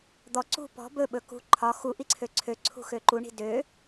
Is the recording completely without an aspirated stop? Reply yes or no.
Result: no